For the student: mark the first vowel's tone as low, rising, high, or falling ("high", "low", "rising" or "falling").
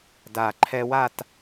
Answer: low